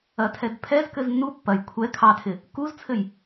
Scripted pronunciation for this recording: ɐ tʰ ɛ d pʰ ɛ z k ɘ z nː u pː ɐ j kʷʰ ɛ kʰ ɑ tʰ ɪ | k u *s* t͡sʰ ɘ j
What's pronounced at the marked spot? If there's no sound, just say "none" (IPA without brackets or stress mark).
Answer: z